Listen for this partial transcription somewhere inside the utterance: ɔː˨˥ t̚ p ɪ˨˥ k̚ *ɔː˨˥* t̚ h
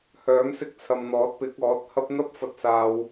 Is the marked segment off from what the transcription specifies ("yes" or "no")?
no